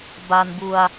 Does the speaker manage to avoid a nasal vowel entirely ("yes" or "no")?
yes